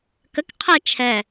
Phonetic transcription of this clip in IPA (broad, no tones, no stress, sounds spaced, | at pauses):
k ə k qʰ ɛ t͡ʃʰ ɛ